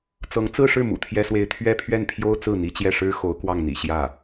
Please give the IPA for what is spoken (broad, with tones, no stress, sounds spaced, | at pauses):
t͡s ɤ˧˥ ŋ t͡s ɹ̩˥˧ ʂ ɻ̩˥˩ m ṵ˨˩ t̪ʰ j ɛ˥ s w e˥˧ ɪ̯ t̪ʰ ɥ ɛ˥˧ pʰ ɥ ɛ˥˩ n pʰ j o˥ ʊ̯ t͡s ɹ̩˥˩ n̪ i˧˥ t͡ɕ j ɛ˥˩ ʂ ɻ̩˥ x o˧˥ ʊ̯ k w ɑ˥˩ ŋ n̪ ḭ˨˩ ɕ j ä˥˩